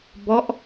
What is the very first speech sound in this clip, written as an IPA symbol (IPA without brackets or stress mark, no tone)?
b